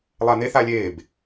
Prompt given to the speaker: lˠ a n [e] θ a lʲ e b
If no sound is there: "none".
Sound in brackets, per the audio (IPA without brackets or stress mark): e